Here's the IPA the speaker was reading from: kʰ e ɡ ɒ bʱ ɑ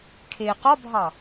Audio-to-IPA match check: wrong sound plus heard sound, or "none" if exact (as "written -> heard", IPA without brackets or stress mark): ɡ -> q